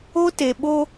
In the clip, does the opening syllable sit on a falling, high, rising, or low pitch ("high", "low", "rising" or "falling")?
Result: high